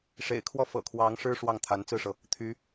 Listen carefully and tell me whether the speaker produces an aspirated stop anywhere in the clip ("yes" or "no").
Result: yes